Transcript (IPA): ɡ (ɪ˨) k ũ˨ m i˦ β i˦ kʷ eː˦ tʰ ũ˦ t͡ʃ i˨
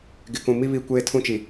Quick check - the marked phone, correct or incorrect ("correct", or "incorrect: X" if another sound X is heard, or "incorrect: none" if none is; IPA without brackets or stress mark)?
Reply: correct